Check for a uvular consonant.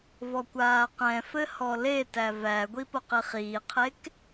present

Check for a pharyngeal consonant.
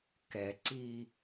absent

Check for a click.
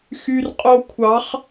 absent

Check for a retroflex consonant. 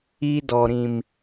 absent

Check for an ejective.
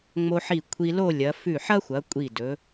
present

